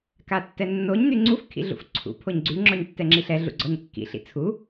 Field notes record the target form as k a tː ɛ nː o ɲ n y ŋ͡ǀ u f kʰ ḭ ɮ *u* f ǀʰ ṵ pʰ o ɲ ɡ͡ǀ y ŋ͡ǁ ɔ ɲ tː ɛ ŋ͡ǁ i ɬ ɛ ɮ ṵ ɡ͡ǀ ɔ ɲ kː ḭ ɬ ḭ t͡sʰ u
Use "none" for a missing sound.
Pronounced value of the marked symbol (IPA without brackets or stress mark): ṵ